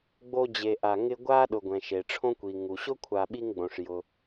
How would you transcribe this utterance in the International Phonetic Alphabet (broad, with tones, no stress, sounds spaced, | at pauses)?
ɡ͡b o˦ d͡ʑ e˨ ʔ a˨ ŋ ɪ˦ ɡʷ a˥ ɗ ʊ˨ ɡʷ ɛ̃˩ ʃ e˩ ʈ͡ʂʰ õ˥ kʷ i˩ ŋ u˩ ɕ ʊ˥ kʷʰ a˨ ɓ i˥ ŋ ɡ͡b õ˩ ʂ j ʊ˩